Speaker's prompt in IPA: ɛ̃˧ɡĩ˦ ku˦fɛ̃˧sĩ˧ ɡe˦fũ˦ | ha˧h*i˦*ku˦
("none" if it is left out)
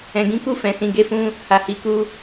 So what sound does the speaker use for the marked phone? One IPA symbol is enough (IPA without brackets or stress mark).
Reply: i˧